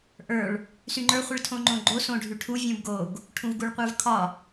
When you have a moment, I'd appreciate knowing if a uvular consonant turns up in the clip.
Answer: yes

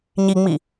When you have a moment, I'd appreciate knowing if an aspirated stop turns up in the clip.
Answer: no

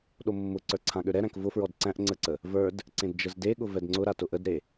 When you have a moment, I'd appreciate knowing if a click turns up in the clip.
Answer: yes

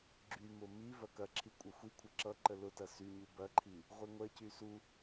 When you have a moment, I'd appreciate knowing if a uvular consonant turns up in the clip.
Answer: yes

